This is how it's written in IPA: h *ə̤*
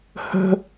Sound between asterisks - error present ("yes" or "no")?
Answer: no